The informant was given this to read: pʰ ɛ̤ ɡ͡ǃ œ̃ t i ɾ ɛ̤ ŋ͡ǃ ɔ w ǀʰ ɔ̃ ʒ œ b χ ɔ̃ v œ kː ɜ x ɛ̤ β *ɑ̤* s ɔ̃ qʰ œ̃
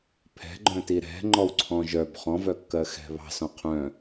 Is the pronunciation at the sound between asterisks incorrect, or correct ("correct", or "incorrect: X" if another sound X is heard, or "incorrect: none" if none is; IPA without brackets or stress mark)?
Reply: correct